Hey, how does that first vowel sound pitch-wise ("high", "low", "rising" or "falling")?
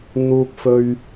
high